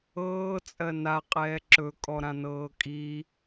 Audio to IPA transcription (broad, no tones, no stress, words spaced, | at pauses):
ɤːt͡sʼɜ naqʼɛː ǁɵkʼɔɾãnɤː kʼi